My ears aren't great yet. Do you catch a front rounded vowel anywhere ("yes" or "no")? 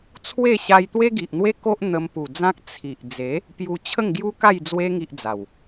no